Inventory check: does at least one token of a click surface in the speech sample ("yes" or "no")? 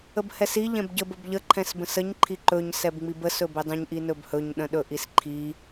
yes